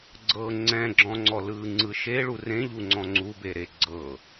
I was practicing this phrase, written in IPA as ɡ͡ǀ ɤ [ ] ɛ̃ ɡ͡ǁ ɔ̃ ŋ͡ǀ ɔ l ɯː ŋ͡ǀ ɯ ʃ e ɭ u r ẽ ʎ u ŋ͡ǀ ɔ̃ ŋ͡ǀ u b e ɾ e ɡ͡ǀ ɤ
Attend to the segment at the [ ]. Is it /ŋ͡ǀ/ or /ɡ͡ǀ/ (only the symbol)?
ŋ͡ǀ